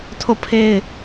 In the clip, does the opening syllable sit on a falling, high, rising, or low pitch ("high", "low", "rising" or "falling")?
falling